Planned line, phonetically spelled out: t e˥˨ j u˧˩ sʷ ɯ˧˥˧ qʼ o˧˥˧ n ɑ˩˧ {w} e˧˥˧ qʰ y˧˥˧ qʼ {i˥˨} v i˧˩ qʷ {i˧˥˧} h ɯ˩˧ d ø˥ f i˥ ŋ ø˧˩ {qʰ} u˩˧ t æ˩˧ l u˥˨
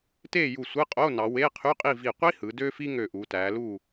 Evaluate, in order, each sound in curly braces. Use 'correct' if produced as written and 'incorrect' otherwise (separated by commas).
correct, correct, incorrect, incorrect